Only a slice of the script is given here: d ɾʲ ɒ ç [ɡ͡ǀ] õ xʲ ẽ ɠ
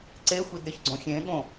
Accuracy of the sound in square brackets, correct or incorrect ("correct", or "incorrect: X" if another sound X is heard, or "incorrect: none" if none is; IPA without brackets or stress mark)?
correct